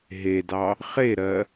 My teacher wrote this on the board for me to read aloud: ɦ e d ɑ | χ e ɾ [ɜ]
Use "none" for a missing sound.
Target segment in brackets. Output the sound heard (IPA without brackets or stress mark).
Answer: ɜ